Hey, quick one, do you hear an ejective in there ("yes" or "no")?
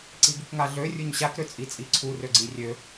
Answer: yes